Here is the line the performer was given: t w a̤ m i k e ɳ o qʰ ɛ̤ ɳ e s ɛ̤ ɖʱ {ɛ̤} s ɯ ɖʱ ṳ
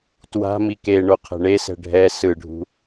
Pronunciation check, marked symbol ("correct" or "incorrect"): incorrect